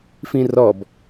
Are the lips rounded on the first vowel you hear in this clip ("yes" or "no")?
no